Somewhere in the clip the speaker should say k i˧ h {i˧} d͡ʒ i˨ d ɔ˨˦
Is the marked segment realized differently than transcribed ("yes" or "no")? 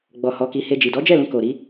yes